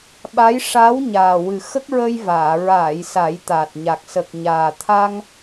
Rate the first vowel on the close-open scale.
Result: open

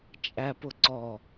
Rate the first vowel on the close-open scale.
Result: open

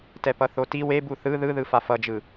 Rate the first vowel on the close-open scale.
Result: mid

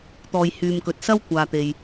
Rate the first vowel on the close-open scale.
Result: mid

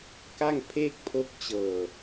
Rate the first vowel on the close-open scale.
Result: open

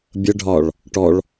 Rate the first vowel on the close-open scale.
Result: mid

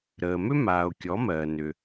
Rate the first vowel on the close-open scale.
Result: mid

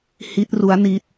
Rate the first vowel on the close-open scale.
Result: close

